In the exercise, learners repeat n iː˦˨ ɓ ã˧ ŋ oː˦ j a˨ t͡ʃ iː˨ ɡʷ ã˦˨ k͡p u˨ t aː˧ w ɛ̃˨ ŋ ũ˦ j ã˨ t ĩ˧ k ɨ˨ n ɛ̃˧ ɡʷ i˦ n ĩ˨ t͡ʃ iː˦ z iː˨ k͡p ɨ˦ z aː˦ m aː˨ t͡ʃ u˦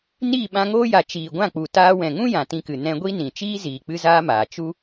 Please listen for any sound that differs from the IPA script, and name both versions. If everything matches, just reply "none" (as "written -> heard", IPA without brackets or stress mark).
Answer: none